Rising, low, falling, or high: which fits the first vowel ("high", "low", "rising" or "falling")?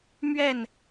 falling